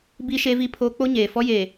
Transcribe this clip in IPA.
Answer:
b i˦ ʃ e˦ v i˦ pʰ oː˦ k͡p o˦ ɲ eː˨ f ɔ˦ j e˨

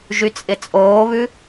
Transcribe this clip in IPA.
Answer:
ʒ y t͡sʼ ɪ t͡sʼ oː β ʉ

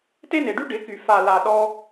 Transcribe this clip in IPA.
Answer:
t e˦ n e˨ ɖ y˦ ɖ ɪ˨˦ k y˨ f a˨ l a˨ ɗ ɔ˧

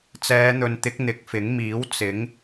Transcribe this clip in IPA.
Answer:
t͡s ɛː˨˧ n̪ ɵ˨ n t̪ ɪ˨˥ k̚ n̪ ɪ˨˥ k̚ f ɪ˨˥ ŋ m iː˨˥ w t͡s ɪ˨˥ ŋ

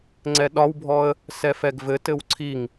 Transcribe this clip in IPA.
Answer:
ŋ͡ǀ ɛ ɗ ɒ w bʱ ɔ ə̯ | s ɛ f ɛ ɡ v ɘ t ɘ w ǀʰ i ŋ

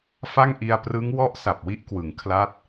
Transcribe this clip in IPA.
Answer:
f a˥˩ ŋ ʔ i˧ a̯ p r ɯ˦˥ ŋ w ɔ˦˥ ʔ s a˨˩ p̚ w i˥˩ ʔ k w ɯ˩˦ ŋ kʰ l a˦˥ t̚

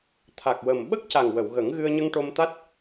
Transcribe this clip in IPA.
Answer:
t̪ʰ a˨˩ k̚ w ə˨˩ m ɓ ə˦˥ k̚ c a˨˩ ŋ w ə˨˩˨ w ɣ ə˨˩˦ ŋ ɣ ɨ˧ ə̯ ɲ ə˧ ŋ ʈ o˧ m t̪ a˦˥ t̚

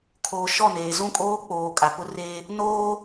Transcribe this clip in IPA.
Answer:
kʰ oː˨ ʃ ɔ˦˨ n eː˨ z ũ˦˨ kʼ oː˦ k͡p oː˨ kʼ a˨ p ʊ˦ r eː˦ | n oː˦

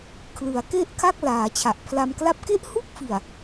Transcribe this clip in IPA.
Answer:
kʰ l ɯ˩˦ a̯ k e˥˩ ʔ kʰ a˥˩ k̚ l aː˩˦ t͡ɕʰ a˨˩ ʔ pʰ l a˧ m k l a˥˩ p̚ k e˥˩ ʔ h u˥˩ k̚ f i˨˩ a̯

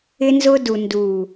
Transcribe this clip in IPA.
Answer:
ɪ˦ n z ʊ˦ d u˨ n d u˨

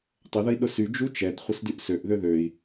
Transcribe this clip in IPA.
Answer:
tˤ ə ð ə i̯ ɗ ʊ s y d͡ʒ u t͡ʃ ɛ d χʷ ə s d y ʔ s ø ʔ ð ø ð ø i̯

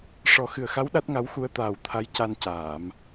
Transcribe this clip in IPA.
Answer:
ʂ ɔ˨˩˦ x ɨ˨˩ ə̯ x a˧˥ w ɗ a˦˥ t̚ ŋ a˧˥ w x u˧˥ ə̯ t̪ aː˨˩ w t̪ʰ a˧˥ j c a˧ n c aː˨˩˨ m

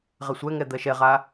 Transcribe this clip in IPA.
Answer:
ʁ ɛ sʷ ɛ ŋ ɛ d̪ ɜ ʃ ɛ ʁ a

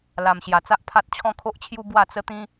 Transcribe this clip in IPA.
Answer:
l a˨˩ m ɕ j a˨˩ t͡s a˦ ʔ pʰ a˦ t̚ t͡ɕʰ ɔ̃˦ kʰ o˦ ʔ t͡ɕʰ j u˦ b w a˥˧ t͡s ə˦ t̪ ĩ˦

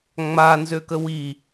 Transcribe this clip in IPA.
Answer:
ŋ͡m a n z ø k ə w i

